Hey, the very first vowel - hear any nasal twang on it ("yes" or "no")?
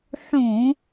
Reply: yes